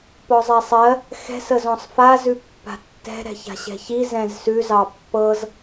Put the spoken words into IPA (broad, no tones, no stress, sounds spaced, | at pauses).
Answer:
p ɔ zˤ ɛ sˤ ɜ | x ɛ̤ s ə z ɔ̃ sˤ f a z ʉ pː a̤ tː ɛ̤ ɾ ɛ̤ ç a̤ ɕ ɛ̤ ç i z ɛ̃ z s ʉ z ɑ pː ɤ z